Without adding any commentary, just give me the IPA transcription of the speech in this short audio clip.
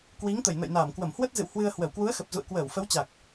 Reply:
k w i˨˦ ŋ t̪ ə˧˩ j n ə̰˧˨ j n aː˧˩ m k w ə˧˩ m h w ə˦˥ t̚ z ɨ̰˧˨ w h w ɨ˧ ə̯ h w ə˧˩ w k w u˨˦ ə̯ x ə˨˩ p̚ z ṵ˧˨ ə̯ k w əː˧˩ w f ə˨˦ w t͡ɕ a˨˩ k̚

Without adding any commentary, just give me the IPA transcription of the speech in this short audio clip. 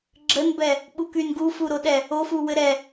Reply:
ɡ͡ǁ ə n b ɛ | ɓ u k y n ɡ u f u ɾ o ɗ ɛ | o f u w ɘ ɾ ɛ

